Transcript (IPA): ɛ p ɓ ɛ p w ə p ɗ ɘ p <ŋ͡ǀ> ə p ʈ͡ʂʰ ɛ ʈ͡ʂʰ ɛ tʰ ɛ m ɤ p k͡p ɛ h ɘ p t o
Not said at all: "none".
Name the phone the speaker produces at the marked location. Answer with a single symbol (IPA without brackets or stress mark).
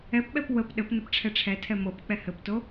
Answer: n